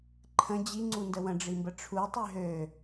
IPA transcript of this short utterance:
ǃʰə̃ d͡ʑiŋ͡ǀundə wə̃ɖ͡ʐimbə ʈ͡ʂʰutˤy ɦø

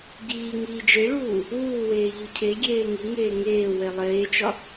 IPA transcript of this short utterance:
ɟiː ŋiːd͡ʒeɭuː | uːweː ʎucʰeɡʲeː ŋiŋeː ŋeːwe lˠeːt͡ʃɒ

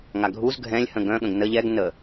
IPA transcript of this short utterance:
ŋaɡʱuz ɡʱɛ̃lʲhə̃ ɡœ̃ɠə̃ɡ nə ʎɛɡ nə

